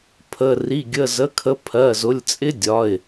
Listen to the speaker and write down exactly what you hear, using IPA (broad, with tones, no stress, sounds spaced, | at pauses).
pʰ ə˩˧˩ r i˩˧˩ ɡʲ ə˩˧˩ z ə˩˧˩ kʰ ə˩˧ pʰ ɜ˩˧˩ z ʊ˩˧˩ lʲ t͡sʼ ɪ˦ dʲ ɒ˩˧˩ ɪ̯